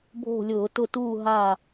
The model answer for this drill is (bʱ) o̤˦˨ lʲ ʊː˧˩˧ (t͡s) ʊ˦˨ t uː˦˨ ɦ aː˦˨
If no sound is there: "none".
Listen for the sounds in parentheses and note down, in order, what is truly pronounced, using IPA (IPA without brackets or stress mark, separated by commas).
bʱ, t